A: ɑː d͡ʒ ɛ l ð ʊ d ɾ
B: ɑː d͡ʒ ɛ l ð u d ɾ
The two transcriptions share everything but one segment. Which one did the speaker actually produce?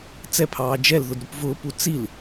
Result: A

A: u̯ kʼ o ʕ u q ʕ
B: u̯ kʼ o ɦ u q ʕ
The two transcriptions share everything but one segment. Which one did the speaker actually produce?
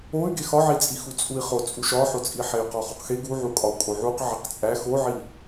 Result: A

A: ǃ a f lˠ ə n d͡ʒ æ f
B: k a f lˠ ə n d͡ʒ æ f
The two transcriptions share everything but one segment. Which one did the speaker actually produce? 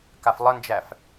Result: B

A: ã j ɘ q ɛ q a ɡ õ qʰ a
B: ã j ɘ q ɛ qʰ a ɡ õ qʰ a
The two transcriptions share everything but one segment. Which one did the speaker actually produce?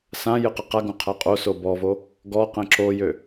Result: A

